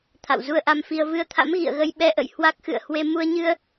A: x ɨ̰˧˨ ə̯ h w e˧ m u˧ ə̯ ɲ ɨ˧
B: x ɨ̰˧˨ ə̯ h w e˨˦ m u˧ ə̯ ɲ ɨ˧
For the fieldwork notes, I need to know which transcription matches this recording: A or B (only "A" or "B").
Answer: A